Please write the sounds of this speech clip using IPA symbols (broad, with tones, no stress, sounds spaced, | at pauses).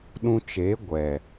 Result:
ɗ ũ˧ t͡ʃ e˨˦ ɡʷ ɛ˨